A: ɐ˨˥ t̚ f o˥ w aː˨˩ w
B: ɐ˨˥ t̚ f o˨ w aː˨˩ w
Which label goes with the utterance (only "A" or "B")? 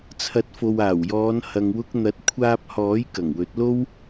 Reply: B